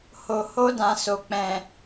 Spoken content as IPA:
h o˨ h o˧ d ã˨ s o˨ k͡p ɛ̃˨

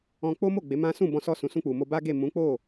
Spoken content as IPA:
ɔ̃˧ k͡p o˦ m o˦˨ ɡ͡b e˨˦ m ã˦ s ũ˦˨ b ɔ̃˧ s ɔ˧ s ũ˨ s ũ˧ k͡p u˨ m o˧ b a˦ ɡ e˦˨ m ũ˨˦ k͡p o˦˨

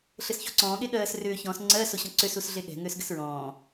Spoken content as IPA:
ɬ ɘ s ç o̤ ǀ ɔ̃ː ɠ e ɠ ɜː s r ʏː ç ɔ̃ s ŋ͡ǀ ɜ s o ɕ ɔ̃ ǀ ʏ s u s ɮ e ɠ ɛ̤ ŋ ʏː s ɡ ɘ s ɹ ɔ̃ː

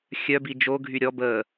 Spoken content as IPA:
xʲ œ b i d͡ʒ o ɡʱ y ɾʲ ɔ b ə

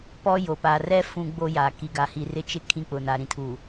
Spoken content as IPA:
p ɔ˦ j o˨ p a˨ r ɛ˦ f ũ˦ ɡ͡b o˦ j aː˨ k i˨ ɡ a˨ h i˨ r ɪ˦ t͡ʃ ɪ˦ kʰ ĩ˦˨ k͡p ʊ˨ n a˨ ɾ ĩ˦ tʰ uː˨

